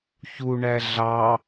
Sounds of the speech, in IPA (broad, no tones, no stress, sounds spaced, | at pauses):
ç u ɳ æ ɮ ɑ